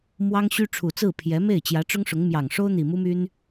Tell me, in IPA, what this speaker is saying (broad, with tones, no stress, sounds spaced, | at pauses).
m w ɑ˥ ŋ ɕ y˥ ʈ͡ʂʰ u˨˩ t͡s ɹ̩˥˩ pʰ j ɛ˧˥ m e˥˩ ɪ̯ t͡ɕ j ä˧˥ ʈ͡ʂ ʊ˥ ŋ ʂ ʊ˧˥ ŋ m j ɑ˨˩ ŋ ʂ o˥ ʊ̯ n̪ i˨˩ m u˥ m y˥ n